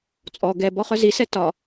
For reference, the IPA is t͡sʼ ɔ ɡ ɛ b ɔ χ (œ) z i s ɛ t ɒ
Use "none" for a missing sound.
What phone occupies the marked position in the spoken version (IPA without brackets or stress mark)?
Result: œ